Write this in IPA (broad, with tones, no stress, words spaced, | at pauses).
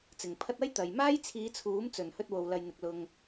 t͡sɪ˨ŋpʰɐ˥t̚ ɐ˥jt̪ɐ˨j maː˥jt͡sʰiː˨˧t͡sʰuː˨˥m t͡sɵ˨˩nhɵ˧t̚wo˨w lɐ˨jn̪ɪ˨k̚ lʊ˧ŋ